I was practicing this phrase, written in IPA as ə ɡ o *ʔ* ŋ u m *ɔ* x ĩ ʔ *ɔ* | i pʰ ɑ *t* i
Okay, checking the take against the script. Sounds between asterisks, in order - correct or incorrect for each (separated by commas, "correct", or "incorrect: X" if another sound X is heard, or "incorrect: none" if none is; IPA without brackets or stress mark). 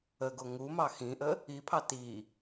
incorrect: none, incorrect: ɑ, incorrect: ə, correct